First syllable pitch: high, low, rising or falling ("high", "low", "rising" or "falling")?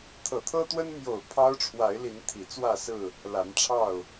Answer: low